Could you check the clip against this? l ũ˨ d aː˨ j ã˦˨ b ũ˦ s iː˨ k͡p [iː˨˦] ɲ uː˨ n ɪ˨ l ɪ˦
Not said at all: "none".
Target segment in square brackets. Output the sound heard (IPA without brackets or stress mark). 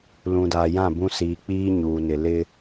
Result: iː˦